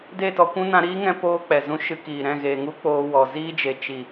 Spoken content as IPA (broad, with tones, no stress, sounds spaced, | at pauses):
d e˦˨ t ɔ˧ kʷ ũ˦ n ã˧ ɾ iː˦ ŋ ɛ̃˧ p oː˦ k͡p ɛ˨ z ũ˦ ʃ ɨ˧ k iː˨ ɾ ɛ̃˦˨ ɣ eː˨ ŋ u˦ k͡p oː˧ w ɔ˨ z iː˦ d͡ʒ e˨ t͡ʃ i˨